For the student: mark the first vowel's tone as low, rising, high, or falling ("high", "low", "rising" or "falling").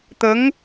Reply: rising